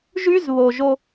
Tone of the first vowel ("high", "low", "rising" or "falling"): high